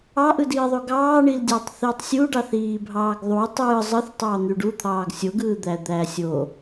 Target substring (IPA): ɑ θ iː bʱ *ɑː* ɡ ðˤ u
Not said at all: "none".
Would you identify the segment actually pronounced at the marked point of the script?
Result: ɑː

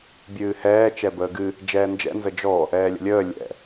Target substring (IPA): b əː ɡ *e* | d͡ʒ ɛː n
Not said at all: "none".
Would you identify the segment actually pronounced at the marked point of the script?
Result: ɨ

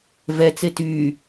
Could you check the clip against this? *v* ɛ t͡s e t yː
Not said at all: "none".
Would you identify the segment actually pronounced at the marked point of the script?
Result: v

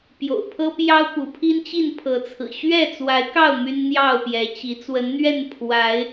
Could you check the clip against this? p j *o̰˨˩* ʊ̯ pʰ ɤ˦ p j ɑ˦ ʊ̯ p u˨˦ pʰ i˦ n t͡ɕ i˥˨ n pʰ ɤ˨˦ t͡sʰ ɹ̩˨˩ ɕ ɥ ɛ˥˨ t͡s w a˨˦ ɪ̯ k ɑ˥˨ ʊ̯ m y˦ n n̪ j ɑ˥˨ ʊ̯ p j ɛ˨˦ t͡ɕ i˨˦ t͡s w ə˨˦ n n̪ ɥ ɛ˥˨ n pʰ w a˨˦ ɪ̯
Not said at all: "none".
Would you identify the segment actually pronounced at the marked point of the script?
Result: o̰˨˩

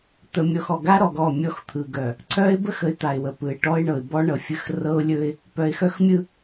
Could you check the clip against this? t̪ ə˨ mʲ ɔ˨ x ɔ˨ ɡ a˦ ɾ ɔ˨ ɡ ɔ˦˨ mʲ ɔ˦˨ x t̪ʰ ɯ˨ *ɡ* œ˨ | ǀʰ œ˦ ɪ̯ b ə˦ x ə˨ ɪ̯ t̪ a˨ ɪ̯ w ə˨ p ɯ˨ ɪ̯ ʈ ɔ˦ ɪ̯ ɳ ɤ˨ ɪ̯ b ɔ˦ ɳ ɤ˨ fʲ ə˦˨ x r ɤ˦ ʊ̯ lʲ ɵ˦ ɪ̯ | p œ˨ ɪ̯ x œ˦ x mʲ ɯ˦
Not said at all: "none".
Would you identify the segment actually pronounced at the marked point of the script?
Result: ɡ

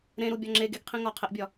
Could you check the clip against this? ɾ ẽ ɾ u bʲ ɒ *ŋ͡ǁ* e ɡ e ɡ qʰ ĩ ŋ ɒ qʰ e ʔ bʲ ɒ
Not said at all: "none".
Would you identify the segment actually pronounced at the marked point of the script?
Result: ŋ͡ǁ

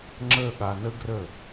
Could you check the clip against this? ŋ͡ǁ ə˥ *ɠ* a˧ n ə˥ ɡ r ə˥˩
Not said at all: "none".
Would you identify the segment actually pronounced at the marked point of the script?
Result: ɠ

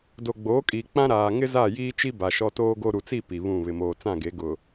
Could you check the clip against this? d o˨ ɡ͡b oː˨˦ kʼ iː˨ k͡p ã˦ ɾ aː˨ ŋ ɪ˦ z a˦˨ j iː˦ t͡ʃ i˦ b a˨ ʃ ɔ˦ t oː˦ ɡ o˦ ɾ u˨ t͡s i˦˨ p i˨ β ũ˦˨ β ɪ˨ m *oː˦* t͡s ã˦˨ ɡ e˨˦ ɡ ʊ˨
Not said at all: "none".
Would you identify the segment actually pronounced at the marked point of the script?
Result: oː˨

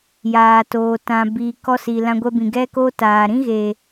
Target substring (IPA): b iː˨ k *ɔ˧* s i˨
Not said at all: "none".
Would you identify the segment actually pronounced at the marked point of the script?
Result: ɔ˧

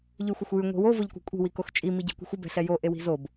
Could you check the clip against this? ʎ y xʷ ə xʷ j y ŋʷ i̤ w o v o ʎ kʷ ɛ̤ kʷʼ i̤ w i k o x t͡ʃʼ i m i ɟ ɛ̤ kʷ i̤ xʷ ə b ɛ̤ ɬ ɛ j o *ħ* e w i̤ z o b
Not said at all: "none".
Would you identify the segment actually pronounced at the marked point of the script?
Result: ʔ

